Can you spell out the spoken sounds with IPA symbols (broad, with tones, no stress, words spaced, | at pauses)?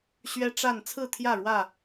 ɕɥɛ˦ʈ͡ʂa˥˨n t͡sʰɹ̩˥˨t̪ʰjä˥˨ɻwä˥˨